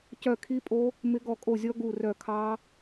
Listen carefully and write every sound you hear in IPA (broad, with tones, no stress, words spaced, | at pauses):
cœ˦˨kʰi˦˥pʼo˦˥ | mɪ˦˥ɡɔ˦˨kʼo˦˨zʲɔ˦˥ ɡu˦˨rœ˦˨ kʰɑ˦˥